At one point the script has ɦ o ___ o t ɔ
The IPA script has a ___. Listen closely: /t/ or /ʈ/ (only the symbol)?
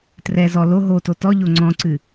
t